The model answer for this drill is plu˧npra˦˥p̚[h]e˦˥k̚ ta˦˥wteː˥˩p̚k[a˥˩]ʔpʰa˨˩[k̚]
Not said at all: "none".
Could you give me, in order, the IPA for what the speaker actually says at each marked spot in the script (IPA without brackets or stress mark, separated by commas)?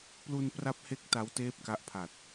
h, a˦˥, t̚